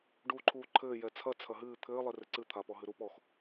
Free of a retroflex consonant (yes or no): no